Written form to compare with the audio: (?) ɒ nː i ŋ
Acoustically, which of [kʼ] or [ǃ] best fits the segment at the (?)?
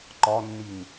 ǃ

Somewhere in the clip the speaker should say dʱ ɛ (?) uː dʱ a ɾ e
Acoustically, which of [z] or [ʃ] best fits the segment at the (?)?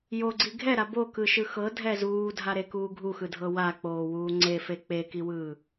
z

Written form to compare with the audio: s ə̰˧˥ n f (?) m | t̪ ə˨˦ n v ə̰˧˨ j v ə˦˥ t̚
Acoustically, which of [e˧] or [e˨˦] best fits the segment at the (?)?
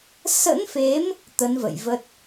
e˨˦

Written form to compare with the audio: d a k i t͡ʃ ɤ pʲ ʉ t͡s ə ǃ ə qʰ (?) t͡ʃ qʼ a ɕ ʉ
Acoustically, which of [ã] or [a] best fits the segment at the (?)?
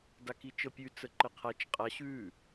a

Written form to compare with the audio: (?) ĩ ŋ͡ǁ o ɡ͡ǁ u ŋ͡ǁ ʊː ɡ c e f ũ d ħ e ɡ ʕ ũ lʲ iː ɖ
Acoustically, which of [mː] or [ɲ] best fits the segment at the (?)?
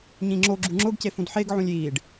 ɲ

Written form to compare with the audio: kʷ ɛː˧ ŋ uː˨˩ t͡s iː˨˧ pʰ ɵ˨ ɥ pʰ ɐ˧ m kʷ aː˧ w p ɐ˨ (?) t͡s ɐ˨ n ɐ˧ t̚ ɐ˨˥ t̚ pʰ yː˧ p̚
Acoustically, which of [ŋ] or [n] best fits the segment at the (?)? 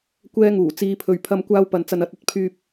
n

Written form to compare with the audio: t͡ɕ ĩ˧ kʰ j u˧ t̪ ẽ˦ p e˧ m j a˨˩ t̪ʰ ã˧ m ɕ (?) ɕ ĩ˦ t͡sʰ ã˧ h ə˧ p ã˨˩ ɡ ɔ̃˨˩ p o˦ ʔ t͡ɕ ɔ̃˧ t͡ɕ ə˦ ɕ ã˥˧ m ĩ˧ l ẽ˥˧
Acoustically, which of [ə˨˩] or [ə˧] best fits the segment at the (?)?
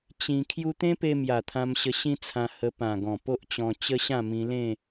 ə˧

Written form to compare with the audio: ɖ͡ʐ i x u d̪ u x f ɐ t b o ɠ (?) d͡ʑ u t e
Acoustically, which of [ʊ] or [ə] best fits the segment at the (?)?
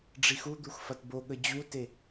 ə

